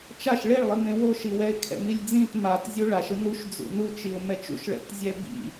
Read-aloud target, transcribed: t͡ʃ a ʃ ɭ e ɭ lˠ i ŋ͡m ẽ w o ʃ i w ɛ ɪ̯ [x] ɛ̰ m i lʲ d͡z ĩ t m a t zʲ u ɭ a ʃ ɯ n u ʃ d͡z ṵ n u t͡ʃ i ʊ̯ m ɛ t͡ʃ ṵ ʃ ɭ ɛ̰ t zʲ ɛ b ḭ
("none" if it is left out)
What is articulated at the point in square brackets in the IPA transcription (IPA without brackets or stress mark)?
kʰ